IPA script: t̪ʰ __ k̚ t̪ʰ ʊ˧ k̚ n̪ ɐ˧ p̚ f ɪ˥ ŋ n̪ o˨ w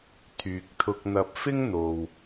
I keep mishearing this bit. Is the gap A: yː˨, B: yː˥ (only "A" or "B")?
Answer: A